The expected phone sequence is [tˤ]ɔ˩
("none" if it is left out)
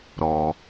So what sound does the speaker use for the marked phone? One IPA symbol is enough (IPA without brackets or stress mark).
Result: ɾ